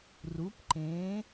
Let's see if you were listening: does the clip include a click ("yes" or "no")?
yes